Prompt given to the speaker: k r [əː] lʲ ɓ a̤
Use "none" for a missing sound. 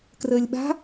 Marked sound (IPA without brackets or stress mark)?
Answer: əː